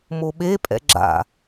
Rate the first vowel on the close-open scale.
mid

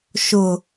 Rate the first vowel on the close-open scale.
close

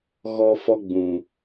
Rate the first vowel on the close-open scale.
mid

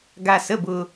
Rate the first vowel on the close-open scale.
open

